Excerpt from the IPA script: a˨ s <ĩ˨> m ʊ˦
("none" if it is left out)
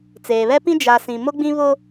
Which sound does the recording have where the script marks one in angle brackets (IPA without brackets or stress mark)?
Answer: ĩ˨